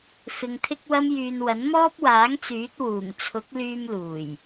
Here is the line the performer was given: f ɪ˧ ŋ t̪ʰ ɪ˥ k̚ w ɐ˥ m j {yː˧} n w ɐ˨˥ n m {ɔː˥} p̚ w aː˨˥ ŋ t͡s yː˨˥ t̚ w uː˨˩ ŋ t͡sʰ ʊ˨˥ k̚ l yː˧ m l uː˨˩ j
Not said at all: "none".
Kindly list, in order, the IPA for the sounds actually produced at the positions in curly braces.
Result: yː˧, ɔː˥

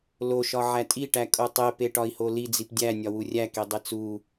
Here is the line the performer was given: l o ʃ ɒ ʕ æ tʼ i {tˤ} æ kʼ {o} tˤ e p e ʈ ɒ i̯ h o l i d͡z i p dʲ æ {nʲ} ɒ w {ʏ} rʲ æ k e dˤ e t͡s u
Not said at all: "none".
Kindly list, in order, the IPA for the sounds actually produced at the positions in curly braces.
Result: ʈ, o, nʲ, u

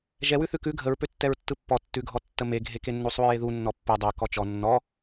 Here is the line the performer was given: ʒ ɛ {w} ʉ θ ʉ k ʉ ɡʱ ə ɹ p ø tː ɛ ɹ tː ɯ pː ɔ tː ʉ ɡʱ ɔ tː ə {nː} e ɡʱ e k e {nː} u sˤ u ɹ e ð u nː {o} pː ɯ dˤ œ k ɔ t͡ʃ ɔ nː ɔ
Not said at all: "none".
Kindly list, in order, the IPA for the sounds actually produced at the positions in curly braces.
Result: w, m, nː, ɔ

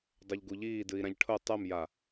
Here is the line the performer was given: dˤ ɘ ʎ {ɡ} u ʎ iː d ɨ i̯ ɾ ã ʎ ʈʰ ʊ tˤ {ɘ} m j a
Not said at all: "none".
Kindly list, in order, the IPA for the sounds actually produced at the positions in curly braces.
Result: ɡ, ɛ

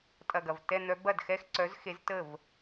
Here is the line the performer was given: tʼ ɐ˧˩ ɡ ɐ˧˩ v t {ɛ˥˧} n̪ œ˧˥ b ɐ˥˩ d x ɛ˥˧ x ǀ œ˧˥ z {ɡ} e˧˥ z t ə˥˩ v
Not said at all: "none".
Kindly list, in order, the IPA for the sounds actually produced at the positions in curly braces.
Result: ɛ˥˧, x

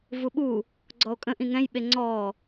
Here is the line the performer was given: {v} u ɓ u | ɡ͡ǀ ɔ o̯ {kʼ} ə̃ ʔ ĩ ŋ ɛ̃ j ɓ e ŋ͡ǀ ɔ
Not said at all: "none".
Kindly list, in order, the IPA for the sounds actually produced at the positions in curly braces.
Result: v, kʼ

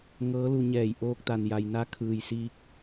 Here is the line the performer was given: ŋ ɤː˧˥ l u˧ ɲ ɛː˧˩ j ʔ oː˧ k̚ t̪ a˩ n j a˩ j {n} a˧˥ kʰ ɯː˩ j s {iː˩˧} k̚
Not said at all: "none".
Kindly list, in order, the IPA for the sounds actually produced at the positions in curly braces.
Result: n, iː˧

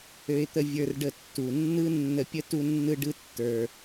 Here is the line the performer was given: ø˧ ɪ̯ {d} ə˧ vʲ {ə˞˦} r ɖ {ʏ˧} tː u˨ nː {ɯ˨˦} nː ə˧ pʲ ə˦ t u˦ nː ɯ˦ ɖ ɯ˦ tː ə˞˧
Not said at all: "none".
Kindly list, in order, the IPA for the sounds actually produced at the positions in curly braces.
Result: t̪, ə˞˧, ə˧, ɯ˦

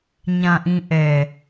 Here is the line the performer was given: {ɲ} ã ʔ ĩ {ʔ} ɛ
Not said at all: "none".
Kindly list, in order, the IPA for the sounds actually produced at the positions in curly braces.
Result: ɲ, ʔ

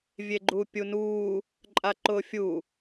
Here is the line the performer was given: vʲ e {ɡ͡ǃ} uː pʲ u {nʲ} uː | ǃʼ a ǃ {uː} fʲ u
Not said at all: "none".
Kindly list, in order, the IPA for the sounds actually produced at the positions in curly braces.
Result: ɡ͡ǃ, n, ʊː

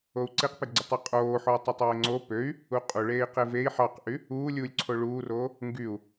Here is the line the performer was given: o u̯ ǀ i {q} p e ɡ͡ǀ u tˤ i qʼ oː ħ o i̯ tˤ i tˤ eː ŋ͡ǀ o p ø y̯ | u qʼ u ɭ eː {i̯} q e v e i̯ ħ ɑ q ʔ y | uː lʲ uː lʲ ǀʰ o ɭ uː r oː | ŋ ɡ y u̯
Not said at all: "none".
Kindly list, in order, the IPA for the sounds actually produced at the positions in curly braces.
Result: q, i̯

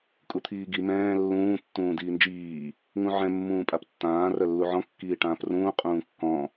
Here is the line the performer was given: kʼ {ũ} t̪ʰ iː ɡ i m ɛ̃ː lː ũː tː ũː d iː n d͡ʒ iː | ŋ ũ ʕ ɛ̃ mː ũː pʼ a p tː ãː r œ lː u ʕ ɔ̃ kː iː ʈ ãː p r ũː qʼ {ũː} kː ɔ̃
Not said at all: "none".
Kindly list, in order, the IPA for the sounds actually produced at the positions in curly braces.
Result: u, ũː

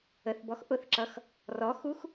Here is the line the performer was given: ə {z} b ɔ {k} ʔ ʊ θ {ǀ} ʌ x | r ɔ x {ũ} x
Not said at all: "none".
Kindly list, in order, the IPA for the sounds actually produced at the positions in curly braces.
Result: θ, x, ǁ, u

